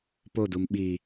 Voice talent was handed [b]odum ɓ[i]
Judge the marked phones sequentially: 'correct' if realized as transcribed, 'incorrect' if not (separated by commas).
incorrect, correct